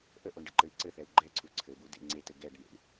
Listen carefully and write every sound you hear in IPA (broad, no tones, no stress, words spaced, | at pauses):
ʔəʔoɳɖɘǃɘi̯ ǀɘθɛu̯ ɡ͡ǃɛǀʰu ǀʰɘbudḛ ŋ͡ǀetɘ ɡɛɖnḛɳ